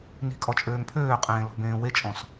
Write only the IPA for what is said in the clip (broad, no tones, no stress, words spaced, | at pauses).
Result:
ni̤kʼɔ t͡ʃʼøːŋpʰøːqʼẽː lɔ̤bẽːwet͡ʃʼɔ̃s